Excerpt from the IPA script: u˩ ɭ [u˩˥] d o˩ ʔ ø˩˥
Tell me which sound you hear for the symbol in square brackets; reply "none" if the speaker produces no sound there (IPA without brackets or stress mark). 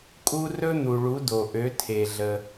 u˩˥